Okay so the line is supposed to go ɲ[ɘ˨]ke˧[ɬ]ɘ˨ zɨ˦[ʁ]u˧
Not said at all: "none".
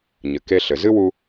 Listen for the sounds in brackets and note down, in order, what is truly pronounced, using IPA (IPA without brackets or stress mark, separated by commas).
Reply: ɘ˨, ɬ, w